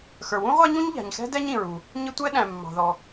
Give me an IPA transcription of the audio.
x ə˞˩ w ũ˥ ʁʷ æ˥ ɲ ũ˥ ɲ ʎ æ̤˩ ɲ x ɛ̤˥ d ɛ˥ ɲ ĩ˩ ɹ u˩ | ɲ ɪ˥ tʷ ɛ˥ ɗ æ̃˩ mː ɑ̤˩ ð ɔ˩

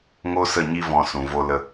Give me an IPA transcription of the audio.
ŋ o˦ s ə˦˨ ɲ i˦ v ɔ̃˧ s ũ˨ v o˧ l ə˧

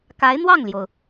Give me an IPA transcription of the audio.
k a˧˥ ɪ̯ n̪ w ɑ˥˩ ŋ l j o˩ ʊ̯

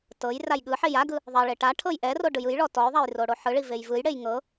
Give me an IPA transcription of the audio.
t ɤ j r a j ɠ ɯ ħ e j a ɡ ɯ | ðˤ ɛ ɭ e ʈ a ʈʰ ɤ j ʔ ɛ r o ɖ ɯ j ɯ j ɭ ɔ t ɔ j ðˤ a j r o ɽ o ħ ɯ ɭ i v e j v ɯ j ɽ e j ŋ ɤ

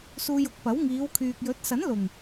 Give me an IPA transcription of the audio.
s uː˧ j ʊ˨˥ k̚ p ɐ˨˥ w ŋ iː˨˧ w kʰ yː˨ k̚ j ɵ˨˥ t̚ s ɐ˨˥ n l ʊ˨˩ ŋ

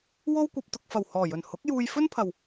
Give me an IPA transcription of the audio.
w o˥ w kʷ ɐ˧ p̚ t̪ ʊ˧ k̚ f ɐ˨˩ w h ɔː˨˩ j ɵ˨˩ n h ʊ˨˥ k̚ j uː˧ j f ɵ˥ n pʰ ɐ˨ w

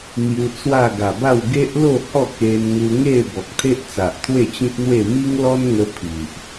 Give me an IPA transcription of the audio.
n̪ j u˧ t͡s w a˥˧ ɡ a˨˩ b a˥˧ w ɡ e˦ ʔ l o˥˧ h ɔ˥˧ k e˧ n ŋ u˧ ŋ e˥˧ b ɔ˨ k̚ t̪ʰ e˦ ʔ t͡s a˨ ʔ t̪ʰ w e˥˧ t͡ɕ ĩ˦ p̚ n̪ w e˥˧ m i˦ ŋ l ɔ˦ n ŋ ə˧ pʰ i˨ ʔ

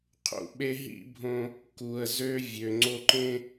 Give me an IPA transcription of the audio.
qʰ ṵ˨ ɓ e˦ ɦ ḭ˦ bʱ õ˦ | k u˨ ə̯ z ø˦ vʲ ø˨ ŋ͡ǀ o˦ ǃ ẽ˦

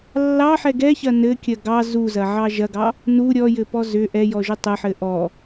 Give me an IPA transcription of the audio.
lː ɑ ħ ɛ ɡ ɛ ç ɐ n ɘ kʲ ɐ ɡ ɑ z u z ɐ ʕ ɑ ʒ ɐ ɡ ɑ | n u ɾʲ ɔ j ɘ p ɔ z ʏ ʔ ɛ j ɔ ʒ ʏ tˤ ɘ ħ ɘ ʔ ɔ

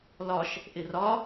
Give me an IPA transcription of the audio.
l ɒ ʃ | ʔ ɪ r ɒ

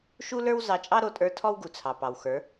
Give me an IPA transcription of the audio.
ʃ u˦ l ə˞˦ w z ɑ˧ t͡ʃʼ ɑ˦ ɾ o˧ tʼ ə˞˧ tʰ ɔ˦ w ɡ u˨ t͡sʰ ɑ˨ p ɑ˨ w x ə˞˨˦

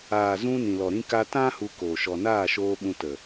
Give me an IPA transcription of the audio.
aː˨ z ũ˧ n ĩ˨ l ɔ˨ ɾ ĩ˦ k a˦ t ã˦ h u˧ k oː˨ ʃ ɔ˨ n aː˦˨ ʃ oː˧ ɓ ũ˧ t ə˨

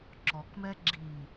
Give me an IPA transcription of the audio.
ǁ ɔ k m ɛ ɡ͡ǁ i

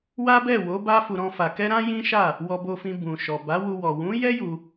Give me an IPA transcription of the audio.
w a˦ b ɛ˦˨ w o˨˦ b a˦ f u˧ ɾ ɔ̃˦ f a˧ k ɛ˦ ɾ ã˦ j ĩ˦ ʃ a˦˨ | w ɔ˧ b o˧ f ĩ˧ b ũ˨ ʃ ɔ˨ b a˨˦ w u˧ w ɔ˨ w ũ˨˦ j ɛ˦ j u˧

